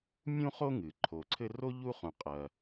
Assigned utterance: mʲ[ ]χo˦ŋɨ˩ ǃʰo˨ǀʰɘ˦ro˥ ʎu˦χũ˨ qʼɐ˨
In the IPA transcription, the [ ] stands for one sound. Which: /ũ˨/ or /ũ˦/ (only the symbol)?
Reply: ũ˦